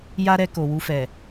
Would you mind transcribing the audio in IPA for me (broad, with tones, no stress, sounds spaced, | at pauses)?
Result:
j a˦ ɾ ɛ˧ k o˨ w u˧ f ɛ˨